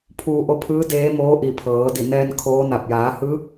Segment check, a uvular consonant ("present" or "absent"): absent